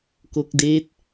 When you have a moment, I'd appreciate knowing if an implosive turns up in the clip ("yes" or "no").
no